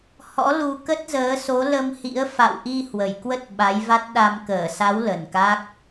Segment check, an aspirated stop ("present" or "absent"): absent